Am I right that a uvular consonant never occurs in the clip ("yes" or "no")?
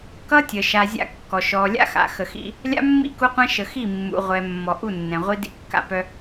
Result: no